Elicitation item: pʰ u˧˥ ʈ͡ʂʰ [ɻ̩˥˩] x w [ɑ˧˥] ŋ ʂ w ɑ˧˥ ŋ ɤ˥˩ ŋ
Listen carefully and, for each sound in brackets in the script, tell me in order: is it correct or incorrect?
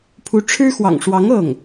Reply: incorrect, incorrect

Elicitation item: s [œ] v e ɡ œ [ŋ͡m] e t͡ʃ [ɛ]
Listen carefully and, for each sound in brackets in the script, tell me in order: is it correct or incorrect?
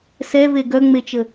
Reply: incorrect, correct, incorrect

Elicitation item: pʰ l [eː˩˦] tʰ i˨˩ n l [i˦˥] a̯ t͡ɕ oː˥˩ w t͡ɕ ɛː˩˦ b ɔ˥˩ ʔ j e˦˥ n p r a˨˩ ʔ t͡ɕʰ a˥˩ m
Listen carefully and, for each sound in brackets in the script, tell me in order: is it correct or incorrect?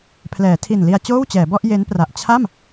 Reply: incorrect, incorrect

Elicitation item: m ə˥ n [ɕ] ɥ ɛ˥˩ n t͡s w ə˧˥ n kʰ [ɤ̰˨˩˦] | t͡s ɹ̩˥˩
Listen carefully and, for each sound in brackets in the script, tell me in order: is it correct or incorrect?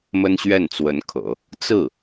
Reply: correct, correct

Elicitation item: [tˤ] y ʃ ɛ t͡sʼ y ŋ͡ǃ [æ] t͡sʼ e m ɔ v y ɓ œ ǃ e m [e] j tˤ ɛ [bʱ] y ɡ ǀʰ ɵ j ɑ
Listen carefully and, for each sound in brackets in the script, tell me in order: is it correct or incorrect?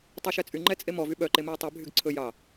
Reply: correct, incorrect, correct, correct

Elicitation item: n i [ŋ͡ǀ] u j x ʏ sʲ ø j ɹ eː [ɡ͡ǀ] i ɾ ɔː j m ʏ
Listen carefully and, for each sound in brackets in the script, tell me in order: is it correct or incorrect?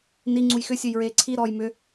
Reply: correct, incorrect

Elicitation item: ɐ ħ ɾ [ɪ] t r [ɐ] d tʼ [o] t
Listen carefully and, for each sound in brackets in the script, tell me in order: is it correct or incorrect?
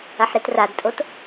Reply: incorrect, incorrect, correct

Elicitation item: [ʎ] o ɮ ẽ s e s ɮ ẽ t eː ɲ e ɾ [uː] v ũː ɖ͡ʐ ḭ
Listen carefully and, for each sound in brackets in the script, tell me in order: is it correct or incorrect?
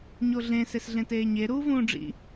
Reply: incorrect, correct

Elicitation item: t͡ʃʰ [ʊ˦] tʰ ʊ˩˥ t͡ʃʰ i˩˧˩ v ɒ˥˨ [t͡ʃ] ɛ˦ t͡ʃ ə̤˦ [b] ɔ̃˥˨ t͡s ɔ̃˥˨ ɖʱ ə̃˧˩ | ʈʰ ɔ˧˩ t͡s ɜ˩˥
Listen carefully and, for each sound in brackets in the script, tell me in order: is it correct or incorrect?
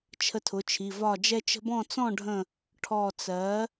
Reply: incorrect, incorrect, correct

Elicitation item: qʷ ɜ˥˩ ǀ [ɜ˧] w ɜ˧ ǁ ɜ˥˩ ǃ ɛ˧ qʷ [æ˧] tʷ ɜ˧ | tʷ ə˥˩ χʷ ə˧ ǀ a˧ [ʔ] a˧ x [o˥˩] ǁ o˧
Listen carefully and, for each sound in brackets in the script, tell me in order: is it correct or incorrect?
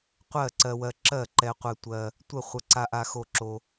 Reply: correct, incorrect, correct, correct

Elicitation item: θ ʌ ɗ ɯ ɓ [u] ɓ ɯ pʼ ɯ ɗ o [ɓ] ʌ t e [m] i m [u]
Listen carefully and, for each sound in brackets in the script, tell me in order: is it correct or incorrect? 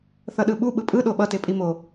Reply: correct, correct, incorrect, incorrect

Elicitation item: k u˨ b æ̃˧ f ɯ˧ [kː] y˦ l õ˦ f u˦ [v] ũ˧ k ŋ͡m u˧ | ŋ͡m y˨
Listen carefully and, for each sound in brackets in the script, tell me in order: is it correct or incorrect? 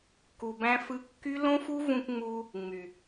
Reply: correct, correct

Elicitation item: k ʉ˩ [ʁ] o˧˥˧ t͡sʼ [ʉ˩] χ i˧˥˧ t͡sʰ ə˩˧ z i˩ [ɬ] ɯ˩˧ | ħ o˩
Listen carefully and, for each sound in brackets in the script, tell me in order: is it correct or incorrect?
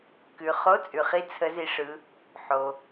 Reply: incorrect, correct, incorrect

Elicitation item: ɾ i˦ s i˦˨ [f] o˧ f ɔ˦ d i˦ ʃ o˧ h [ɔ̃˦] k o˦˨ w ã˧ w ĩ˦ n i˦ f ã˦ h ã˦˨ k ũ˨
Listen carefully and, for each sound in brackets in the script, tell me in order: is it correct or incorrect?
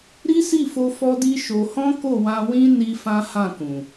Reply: correct, correct

